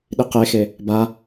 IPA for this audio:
ɗ i q e x e | b a

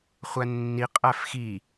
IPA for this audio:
χʷ æ nː i qʼ æ f x i

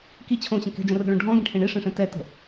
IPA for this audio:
k i t͡ɕʰ õ ɕ ə̃ k ɛ̤ d͡ʒ ə̃ r ə̤ ɭ õ ɖʱ ɔ̃ ɡ ĩ ʈʰ ẽ ɳ i ʂ ẽ ʂ ẽ t ɛ t ə̤

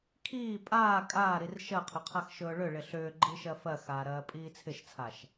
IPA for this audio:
kʰ iː pʼ aː kʼ aː ɾ i r ʃ ɜ qʰ ʏ qʰ a x ʃ ɵː ɭ ʏ ɭ ɪ ɬ ʏː ɡ͡ǃ i ʃ ɜ f ɜ x aː ɾ ɜː pʼ iː t͡sʰ ɪ ʃ t͡sʰ a ʃ

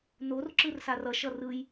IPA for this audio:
n o r ǁ ɯ r s a r ʌ ʃ ʌ r ɯ j

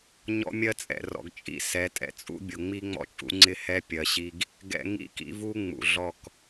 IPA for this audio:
ɲ ɔ̰˦ mʲ ɜ˦ t͡sʼ ɛ̰˨ r ɔ̰˨ ɡ t͡ʃʼ ḭ˦ s ɛ˨˦ tʼ ɛ̰˦ t͡sʼ ṵ˦ bʲ ʊ˨ ŋ͡m i˦ ŋ͡m ɔ̰˦ t͡ʃʼ ṵ˦ ŋ͡ǀ ɪ˦ h ɛ˦ pʲ ɜ˨ ɕ i˦ ɡ | ɡ ɛ̰˦ ŋ ḭ˦ k ḭ˦ v u˦ ŋ͡m ṵ˨ ɮ ɔ˦˨ k

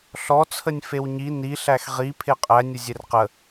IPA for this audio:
ɬ ɔ t͡sʰ ə nʲ f e w ɲ i n i ɬ æ x ʁ i pʰ e qʼ æ nʲ ə zʲ e r q ə

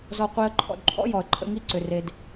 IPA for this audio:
z ɔ˧ qʷ i˧ ə̯ ǃʰ ɔ̰˧ d ǃʰ ɔ̰˦ j ɔ˨ ə̯ ǃʼ ə̰˧ ŋ i˧ ǀ ʏ˨ r e˨ d

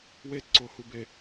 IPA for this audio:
w e t ǀ o h u b e

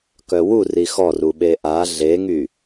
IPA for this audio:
k œ w u r i x ɔ r u ɓ e ʔ a ɮ e ŋ y

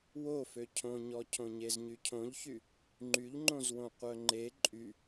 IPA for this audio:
w o f ø cʰ õ ɲ ɔ cʰ õ ɲ e z ɲ y cʰ õ ʎ ç y | ŋ͡ǃ y ʎ ŋ͡ǃ õ z w õ qʷ œ ŋ͡ǃ e ǃʼ y

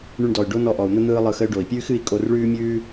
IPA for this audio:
ɳ y˧ ɳ d ɔ˨ y̯ ɖ o˦ n ɔ˧ ʔ ɔ˨ u̯ n̪ ə˦ n̪ ɯː˦ lˠ ɯ˧ x ə˦ y̯ ɖ o˨ i̯ pʲ ʉː˦ x ɨ˧ i̯ kʼ o˧ r ɭ ʉː˦ mʲ ʉː˦

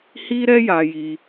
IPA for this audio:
h i˦ ɾ ɛ˦ j a˧ j i˦

